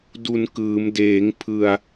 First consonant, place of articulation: alveolar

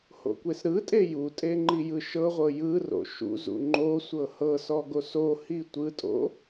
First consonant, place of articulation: glottal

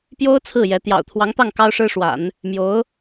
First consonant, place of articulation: labial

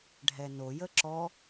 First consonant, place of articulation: retroflex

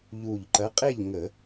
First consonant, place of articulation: palatal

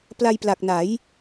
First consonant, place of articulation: labial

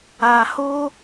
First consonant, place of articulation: glottal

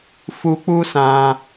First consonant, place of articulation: labial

